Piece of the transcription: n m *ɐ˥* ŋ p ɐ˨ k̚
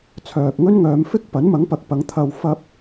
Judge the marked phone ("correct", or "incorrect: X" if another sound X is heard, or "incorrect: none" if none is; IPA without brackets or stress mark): incorrect: ɐ˨˥